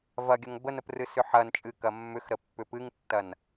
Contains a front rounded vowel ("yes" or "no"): yes